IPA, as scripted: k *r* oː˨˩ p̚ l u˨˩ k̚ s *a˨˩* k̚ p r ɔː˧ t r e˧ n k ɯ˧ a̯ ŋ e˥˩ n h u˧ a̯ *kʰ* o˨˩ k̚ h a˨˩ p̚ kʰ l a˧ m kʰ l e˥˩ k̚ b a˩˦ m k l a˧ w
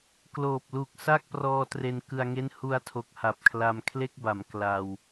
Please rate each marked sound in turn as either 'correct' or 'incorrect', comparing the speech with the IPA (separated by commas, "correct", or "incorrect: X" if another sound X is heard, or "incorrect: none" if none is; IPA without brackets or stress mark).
incorrect: l, incorrect: a˥˩, incorrect: tʰ